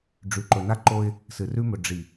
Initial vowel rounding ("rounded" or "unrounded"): rounded